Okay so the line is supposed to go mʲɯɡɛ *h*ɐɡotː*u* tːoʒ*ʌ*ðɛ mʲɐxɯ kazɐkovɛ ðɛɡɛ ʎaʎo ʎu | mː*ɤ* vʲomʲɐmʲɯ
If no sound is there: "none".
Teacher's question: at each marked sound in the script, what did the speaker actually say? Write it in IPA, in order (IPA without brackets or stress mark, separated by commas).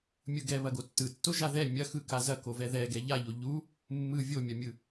β, ɯ, a, ɯ